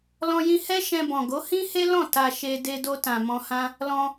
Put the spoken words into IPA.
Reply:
l ɔ̃˧ j ĩ˧ h ɛ˦ ʃ ɛ̃˧ b ɔ̃˨ ɡ o˨˦ h ĩ˦ h e˦ l ɔ̃˦˨ t a˧ ʃ e˧ d e˧ d o˧ t ã˨ m ɔ̃˧ h ã˦ | l ɔ̃˧

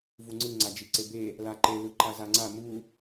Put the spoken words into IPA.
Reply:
v u ŋ͡ǀ ɯ ŋ͡ǀ a d͡ʒ i ǀ e b e | l a ǃ e l ɯ ǃ a z a ŋ͡ǀ a m u

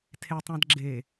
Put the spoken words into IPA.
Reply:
tʰ e tˤ ã d ɡ͡ǁ e

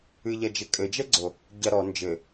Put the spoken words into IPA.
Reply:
ɨ ʎ ɐ d͡ʒ e kʼ ɘ d͡ʒ ɛ ɡ͡ǀ o | ɟ ɐ ɾ ɔ n d͡ʒ ɘ

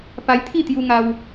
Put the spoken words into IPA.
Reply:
p a˧ j t̪ʰ i˥˧ t̪ j u˧ ŋ a˧ w

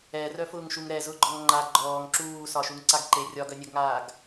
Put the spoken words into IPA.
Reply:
ɛ r œ f ʊː ŋ ʃ u ŋ ɾ ɛ z ʊ ɡ͡ǃ ɔ ŋ ŋ͡ǃ a ɡ͡ǃ ɔː ŋ ǁ uː s ɒ ʃ u ŋ ǀ a ɡ ǃ e rʲ ɒ ɡ œ nʲ œ ɡ ŋ aː ɡ

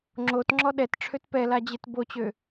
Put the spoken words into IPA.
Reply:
ŋ͡ǁ o t ŋ͡ǁ ɔ ɗ ɛ t ʈ͡ʂʰ ø t p ɛ l a d͡ʑ e t b o t͡ɕ ø

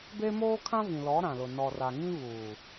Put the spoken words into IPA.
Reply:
b e˦ m oː˦ kʰ ã˦ v ĩ˨ l ɔ˨˦ ɾ ã˨ l ʊ˨ n ɔ˨ r a˨ ŋ ĩ˦ β uː˨

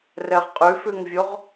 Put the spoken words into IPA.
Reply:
r ɛ ʁ qʼ ʉ f ʉ ŋ vʲ o ʁ

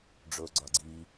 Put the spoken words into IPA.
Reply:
ɖ͡ʐ o ɡ͡ǀ ɒ ɡ͡ǀ i

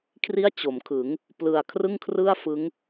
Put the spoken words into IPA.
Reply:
kʰ r i˥˩ a̯ t͡ɕ o˩˦ m kʰ ɯ˩˦ ŋ | p l ɯ˨˩ a̯ kʰ r ɯ˥˩ ŋ kʰ r ɯ˥˩ a̯ f ɯ˦˥ ŋ

